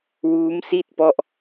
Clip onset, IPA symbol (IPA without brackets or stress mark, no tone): w